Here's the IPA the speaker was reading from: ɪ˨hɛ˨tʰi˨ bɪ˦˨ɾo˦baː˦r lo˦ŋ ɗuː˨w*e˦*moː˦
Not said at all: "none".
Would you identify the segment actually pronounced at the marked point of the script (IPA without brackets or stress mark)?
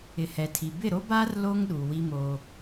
i˦